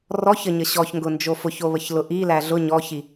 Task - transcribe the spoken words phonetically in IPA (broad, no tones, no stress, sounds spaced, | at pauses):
r ɔ ç ə ɲ ə ɕ ɔ ç ŋ ɡ ʊ n d͡ʒ o f ʊ ç o β ə ç l ʊ ʔ i l æ ɮ ʊ ɲ ɔ ç i